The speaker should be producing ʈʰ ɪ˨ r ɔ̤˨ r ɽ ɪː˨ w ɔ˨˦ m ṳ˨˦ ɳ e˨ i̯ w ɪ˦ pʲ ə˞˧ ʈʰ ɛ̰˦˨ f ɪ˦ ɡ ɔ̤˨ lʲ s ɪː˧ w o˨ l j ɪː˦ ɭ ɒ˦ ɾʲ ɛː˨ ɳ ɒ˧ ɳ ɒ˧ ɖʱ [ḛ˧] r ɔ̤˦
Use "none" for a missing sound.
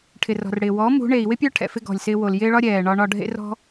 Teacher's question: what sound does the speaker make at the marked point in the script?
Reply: ḛ˦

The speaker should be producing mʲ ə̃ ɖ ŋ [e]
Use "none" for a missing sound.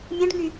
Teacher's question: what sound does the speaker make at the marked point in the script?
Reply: y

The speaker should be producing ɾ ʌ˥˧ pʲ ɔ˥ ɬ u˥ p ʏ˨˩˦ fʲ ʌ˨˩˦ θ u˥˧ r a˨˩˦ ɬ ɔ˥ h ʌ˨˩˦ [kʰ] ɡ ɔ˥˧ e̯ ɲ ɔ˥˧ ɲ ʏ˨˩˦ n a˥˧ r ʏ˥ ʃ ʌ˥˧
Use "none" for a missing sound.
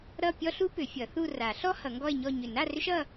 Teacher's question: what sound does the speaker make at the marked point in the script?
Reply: ŋ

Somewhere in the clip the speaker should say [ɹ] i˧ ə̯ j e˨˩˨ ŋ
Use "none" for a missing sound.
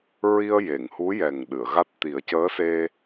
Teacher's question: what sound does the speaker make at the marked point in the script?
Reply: ɹ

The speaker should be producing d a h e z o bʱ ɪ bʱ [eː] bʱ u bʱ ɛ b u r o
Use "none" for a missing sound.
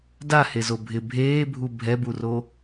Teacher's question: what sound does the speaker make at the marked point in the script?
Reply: eː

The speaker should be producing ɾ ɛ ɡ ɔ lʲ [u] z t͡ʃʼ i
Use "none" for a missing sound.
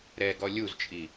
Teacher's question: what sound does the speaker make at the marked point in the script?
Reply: u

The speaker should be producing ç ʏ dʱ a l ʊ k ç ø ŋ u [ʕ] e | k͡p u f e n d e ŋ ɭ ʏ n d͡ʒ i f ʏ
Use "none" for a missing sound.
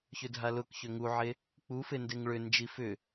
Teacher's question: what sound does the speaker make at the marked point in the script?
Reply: ʕ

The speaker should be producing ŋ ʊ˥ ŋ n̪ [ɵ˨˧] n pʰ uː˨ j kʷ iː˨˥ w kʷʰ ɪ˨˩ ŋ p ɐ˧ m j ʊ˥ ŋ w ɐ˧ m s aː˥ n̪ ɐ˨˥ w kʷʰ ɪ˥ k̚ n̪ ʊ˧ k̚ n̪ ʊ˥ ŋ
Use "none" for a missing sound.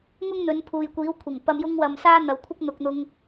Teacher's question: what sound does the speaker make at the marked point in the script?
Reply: ɵ˨˧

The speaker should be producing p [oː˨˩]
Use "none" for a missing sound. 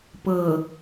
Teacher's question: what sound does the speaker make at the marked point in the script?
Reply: ɤː˨˩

